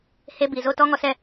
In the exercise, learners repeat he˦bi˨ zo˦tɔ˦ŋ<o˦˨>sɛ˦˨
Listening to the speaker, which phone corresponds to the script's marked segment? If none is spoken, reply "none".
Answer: ɔ˦˨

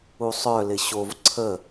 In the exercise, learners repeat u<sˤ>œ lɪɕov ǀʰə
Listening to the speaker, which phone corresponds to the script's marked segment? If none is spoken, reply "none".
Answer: sˤ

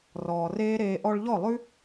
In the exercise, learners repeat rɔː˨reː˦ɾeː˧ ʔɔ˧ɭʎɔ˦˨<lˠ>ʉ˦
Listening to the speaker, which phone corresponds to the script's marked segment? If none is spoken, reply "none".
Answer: lˠ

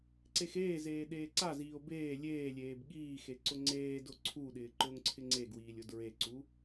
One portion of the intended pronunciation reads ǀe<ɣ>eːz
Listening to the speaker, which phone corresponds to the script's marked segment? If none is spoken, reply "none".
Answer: x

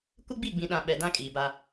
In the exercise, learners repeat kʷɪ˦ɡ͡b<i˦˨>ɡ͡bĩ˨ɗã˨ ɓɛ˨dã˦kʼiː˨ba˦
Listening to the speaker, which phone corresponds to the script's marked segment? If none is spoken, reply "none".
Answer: i˦˨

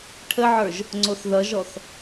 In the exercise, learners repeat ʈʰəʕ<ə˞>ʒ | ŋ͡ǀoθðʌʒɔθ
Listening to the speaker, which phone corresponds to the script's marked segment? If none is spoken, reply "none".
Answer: ə˞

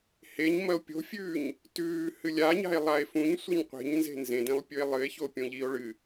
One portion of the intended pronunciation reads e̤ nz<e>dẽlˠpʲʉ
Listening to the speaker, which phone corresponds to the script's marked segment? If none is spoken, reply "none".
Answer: ẽ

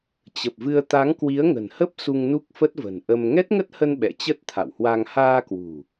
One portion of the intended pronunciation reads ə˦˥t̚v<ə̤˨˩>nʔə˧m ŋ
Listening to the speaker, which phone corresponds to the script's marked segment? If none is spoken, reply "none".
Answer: ə̤˨˩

